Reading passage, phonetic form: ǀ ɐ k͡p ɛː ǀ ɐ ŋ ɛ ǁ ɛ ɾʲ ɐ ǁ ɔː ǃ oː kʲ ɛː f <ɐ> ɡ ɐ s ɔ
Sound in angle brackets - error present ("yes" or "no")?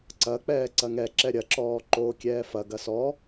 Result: no